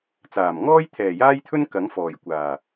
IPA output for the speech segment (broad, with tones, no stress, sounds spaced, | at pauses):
t͡s aː˨˩ m ŋ ɔː˥ j t̪ʰ ɛː˨˩ j aː˥ j t̪ʰ ɵ˥ n k ɐ˨˥ ŋ f ɔː˨˩ j kʷ aː˨˩